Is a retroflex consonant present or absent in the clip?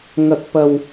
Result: absent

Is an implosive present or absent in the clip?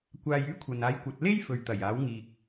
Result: absent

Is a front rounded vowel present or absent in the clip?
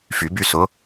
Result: present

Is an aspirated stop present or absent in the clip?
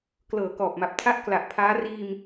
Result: present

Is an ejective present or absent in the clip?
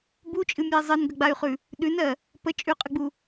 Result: present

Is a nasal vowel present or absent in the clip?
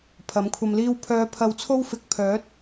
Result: absent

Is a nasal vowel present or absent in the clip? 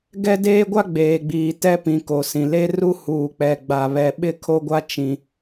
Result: present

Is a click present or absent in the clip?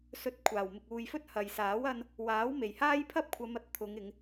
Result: absent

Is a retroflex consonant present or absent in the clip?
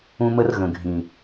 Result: absent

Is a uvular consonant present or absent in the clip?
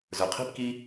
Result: present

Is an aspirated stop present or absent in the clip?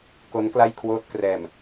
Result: present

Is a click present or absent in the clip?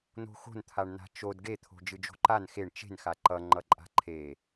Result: present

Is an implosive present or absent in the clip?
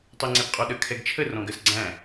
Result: present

